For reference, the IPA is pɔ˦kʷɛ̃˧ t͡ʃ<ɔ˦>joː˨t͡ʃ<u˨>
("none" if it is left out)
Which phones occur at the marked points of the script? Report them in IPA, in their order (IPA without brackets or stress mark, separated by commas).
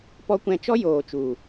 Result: ɔ˦, u˨